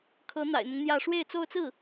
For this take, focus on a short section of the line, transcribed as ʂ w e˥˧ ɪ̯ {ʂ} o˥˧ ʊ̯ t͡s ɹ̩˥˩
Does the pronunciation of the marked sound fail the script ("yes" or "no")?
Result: yes